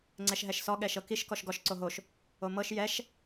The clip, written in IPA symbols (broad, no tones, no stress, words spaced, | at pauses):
ŋ͡ǀɛʃɦɛʃsɔ ɠɛʃɤkiʃ kɔʃɡɔʃ ǀoɦoʃ | omɤʃ jɛʃ